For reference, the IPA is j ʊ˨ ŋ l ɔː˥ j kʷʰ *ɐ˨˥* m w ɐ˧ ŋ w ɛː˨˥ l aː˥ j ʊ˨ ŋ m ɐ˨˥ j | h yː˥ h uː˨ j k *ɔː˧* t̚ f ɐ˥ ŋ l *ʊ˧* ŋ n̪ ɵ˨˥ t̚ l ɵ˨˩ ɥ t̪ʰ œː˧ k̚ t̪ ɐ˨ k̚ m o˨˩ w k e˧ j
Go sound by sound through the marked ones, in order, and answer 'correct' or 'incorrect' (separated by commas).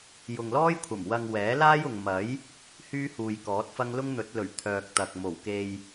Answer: incorrect, incorrect, incorrect